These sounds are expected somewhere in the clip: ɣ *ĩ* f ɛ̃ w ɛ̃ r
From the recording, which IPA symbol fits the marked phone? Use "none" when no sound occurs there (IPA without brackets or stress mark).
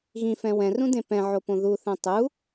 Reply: ĩ